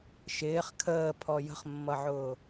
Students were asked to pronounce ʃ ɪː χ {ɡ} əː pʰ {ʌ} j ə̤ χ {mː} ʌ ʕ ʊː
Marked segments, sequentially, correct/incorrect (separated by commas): incorrect, incorrect, correct